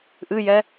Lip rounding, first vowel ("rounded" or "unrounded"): unrounded